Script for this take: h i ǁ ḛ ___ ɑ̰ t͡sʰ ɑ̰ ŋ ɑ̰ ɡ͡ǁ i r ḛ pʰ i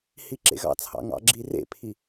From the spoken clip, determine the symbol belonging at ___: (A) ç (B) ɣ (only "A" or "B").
B